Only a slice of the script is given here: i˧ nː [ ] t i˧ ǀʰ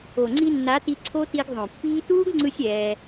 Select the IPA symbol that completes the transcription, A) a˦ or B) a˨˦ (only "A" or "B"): B